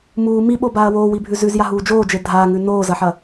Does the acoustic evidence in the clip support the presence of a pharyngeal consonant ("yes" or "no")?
yes